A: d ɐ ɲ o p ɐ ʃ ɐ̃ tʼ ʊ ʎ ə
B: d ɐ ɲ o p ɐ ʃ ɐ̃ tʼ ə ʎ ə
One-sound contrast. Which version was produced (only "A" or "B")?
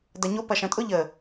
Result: A